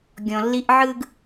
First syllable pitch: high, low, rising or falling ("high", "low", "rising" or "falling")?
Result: low